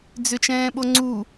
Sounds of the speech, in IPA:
d͡z ʏ t͡ʃ ɛ̃ː ɓ o ŋ͡ǀ u

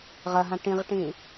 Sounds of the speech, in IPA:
ʁ ɐ ɦ ã ʈ ĩ ʁ ʈ ĩ

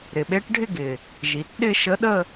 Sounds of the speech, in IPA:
ɾ ɪ˨˩ ɓ e˧˥ ʈ ɖʱ ɪ˥˧ ɡ ɪ˨˩ | ʒ i˩˧ t ɗ ɪ˥˧ ʃ ə˧˥ ɗ ə˥˧

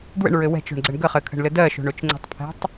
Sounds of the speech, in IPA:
d w ə̰ ɳ ɹ ɘ w ɛ̤ t͡ʃ o̤ ɳ ɡ͡ǀ ə ɳ ɡ ə χ ɘ kʰ ə̤ ɳ l ɘ d ɜ ʃ o̤ ɳ o t͡ʃ ŋ͡ǀ ə̤ tˤ pʰ ɛ̤ tˤ

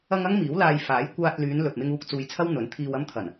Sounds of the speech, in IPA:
ɐ˧ ŋ ɐ˥ ŋ m iː˨˥ w l aː˧ j f aː˨˥ j kʷ aː˧ t̚ l yː˨˧ n l ɵ˨ t̚ m ɪ˧ ŋ uː˧ k̚ t͡s uː˧ j t͡sʰ ɐ˥ w n̪ ɵ˨˥ n t̪ʰ iː˨ w ɐ˧ m t̪ʰ ɐ˨˩ n

